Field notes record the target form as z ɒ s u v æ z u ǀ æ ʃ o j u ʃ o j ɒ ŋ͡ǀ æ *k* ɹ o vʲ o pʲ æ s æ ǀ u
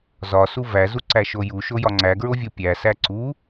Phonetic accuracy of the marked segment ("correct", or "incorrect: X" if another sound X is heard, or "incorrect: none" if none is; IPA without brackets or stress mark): incorrect: ɡ